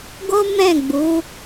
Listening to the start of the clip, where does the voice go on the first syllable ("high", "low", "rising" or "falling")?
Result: high